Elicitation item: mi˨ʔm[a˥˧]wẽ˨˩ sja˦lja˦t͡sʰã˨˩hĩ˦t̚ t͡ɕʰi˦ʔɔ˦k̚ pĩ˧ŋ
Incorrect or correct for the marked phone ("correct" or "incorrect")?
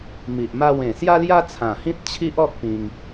correct